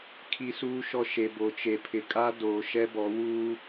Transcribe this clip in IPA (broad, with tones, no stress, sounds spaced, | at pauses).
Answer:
kʰ i˦ s uː˦ ʃ ɔ˦ ʃ e˨ b o˨ t͡ʃ e˨ pʰ ɪ˨ kʼ a˦ d oː˨ ʃ ɛ˦ b ɔ˨˦ w uː˦